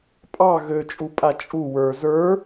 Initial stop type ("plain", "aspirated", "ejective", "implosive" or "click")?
ejective